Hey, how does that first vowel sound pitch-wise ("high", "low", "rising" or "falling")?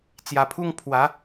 low